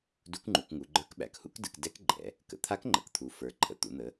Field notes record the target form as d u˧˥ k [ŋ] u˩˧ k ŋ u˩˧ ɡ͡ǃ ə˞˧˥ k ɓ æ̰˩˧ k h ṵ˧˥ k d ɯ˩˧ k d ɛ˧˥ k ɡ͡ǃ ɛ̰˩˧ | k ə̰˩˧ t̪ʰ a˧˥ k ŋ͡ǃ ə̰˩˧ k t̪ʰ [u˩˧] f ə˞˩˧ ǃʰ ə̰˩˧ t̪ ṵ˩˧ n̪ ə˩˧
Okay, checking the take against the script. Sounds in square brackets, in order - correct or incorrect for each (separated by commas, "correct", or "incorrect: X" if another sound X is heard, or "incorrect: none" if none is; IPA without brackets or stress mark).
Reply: incorrect: ŋ͡ǃ, correct